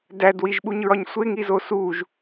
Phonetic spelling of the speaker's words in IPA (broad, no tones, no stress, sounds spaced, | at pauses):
d æ d w i ʒ ɓ u ɲ ɹ ɒ ɲ sʷ e ŋ i z o s u ʒ